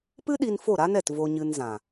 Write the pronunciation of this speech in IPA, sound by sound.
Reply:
pɨ˦ɗi˧n fo˦˨ɾa˦nɛ˦˨t vo˧ɲɨ˧nzã˨

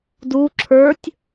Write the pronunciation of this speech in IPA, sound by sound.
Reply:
du ǁʰə˞tʲ

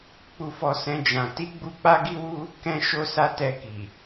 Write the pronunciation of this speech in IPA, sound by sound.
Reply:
k͡pu˧fɔ˧ sɛ̃˦d͡ʒã˧ ti˦ɡ͡bu˦ k͡pa˦ɡi˦wu˦ | kɛ̃˦ ʃo˦sa˦tɛ˦˨ki˨

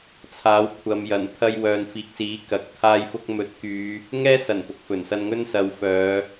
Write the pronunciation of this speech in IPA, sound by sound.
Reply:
t͡sʰaː˨˥wkʷʰɐ˨˧m jɐ˨˩n t̪ʰɐ˧jwœː˨nfiː˨k̚siː˨˥ kɐ˨˥k̚t̪ʰaː˥jfʊ˥k̚ mɵ˨˥t̚kyː˨˧ | ŋɛː˥sɐ˨˩n pʊ˨k̚fɵ˨˩n sɐ˧nŋɵ˥n sɐ˨˧wfœː˨˧

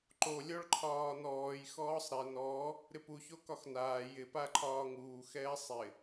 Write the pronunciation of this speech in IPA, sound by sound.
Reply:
ǃo lʲɔɭǃʰɒːnɔːj xɔːsˤɾɛ nɔ | ɾɪpu çokɒxnaː jɪ paǃʰɒːŋuː xɛːsˤɪ

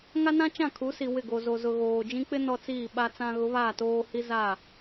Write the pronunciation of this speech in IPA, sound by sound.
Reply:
ŋa˦nã˦ t͡ʃã˦˨kʰu˨˦si˨ wɪ˦˨ɡo˨ zo˨zʊ˨ɣoː˨d͡ʒĩ˦ k͡pɪ˦ nɔ˦t͡siː˦˨ ɓa˦t͡sã˦ ɣʊ˨˦βaː˦˨ toː˦ hi˦za˦˨

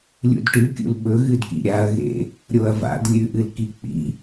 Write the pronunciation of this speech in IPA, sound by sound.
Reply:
lʲṵdʈʉkʲṵl ɓɵɣɨdkḭ ɾʲaɐ̯ɣḛ | ɾʲoɐ̯va̰d lʲʉʔɨlki k͡pḭ

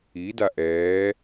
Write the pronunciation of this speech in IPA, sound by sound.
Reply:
ida ʔɛː

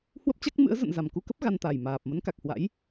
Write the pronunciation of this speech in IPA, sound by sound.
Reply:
hwə˦˥p̚t͡ɕa˦˥k̚mɨ̰˧˥ə̯ zə̰˧˨nza˨˩mku˧kə˦˥p̚ ɣa˧nt̪a˨˩j maː˨˩p̚mə˨˦nka˨˩k̚hwa̰˧˥j

